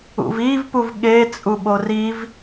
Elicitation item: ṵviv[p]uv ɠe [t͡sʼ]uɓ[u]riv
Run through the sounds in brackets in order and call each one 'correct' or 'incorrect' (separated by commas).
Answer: correct, correct, incorrect